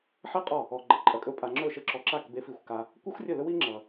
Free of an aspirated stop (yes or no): yes